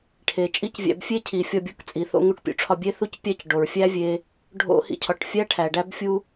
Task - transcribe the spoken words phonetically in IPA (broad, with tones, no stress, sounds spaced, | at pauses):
ʈʰ e˩ t͡ʃʼ i˥ c vʲ æ̰˧ b fʲ e˥ cʰ i˩ fʲ ɒ˧ bʲ u˧ k t͡sʼ i˩ θ o̰˧ ŋ u˧ ʈ pʲ ṵ˧ ʈ͡ʂʰ ɒ˧ bʲ e˥ θ u˥ c pʲ æ˥ c ɖ o˩ ɹ fʲ æ˥ vʲ e˧ | ɖʱ o̰˥ h ḭ˧ cʰ ɒ˩ ʈ fʲ æ˥ ʈʰ æ˩ ɖ æ˥ b fʲ u˥